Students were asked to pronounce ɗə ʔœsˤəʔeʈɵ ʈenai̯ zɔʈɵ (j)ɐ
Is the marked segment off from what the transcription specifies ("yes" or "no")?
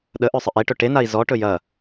no